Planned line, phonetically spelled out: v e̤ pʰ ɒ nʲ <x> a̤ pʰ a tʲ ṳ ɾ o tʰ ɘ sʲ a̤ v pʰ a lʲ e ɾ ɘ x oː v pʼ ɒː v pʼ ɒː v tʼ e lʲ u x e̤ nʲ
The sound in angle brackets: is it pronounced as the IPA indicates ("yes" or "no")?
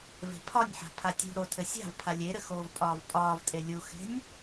no